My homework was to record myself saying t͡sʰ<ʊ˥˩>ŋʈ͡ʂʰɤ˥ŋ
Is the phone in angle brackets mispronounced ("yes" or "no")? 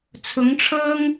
yes